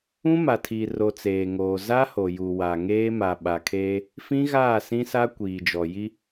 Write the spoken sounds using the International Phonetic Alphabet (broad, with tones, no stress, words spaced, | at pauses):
ũ˦ma˨tʰi˨ro˨ t͡seː˨ŋoː˨ za˦ ho˨ju˨wa˨ŋeː˦ ma˨ɓa˨kʰe˦ | fĩ˦ɣaː˦˨ sĩ˦sa˦ kʷiː˨d͡ʒɔ˨ji˦